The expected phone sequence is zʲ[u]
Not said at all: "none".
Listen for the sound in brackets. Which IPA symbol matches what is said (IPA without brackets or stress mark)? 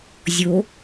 o